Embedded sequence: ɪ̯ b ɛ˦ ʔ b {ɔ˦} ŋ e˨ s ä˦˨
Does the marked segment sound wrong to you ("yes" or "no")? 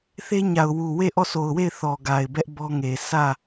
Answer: no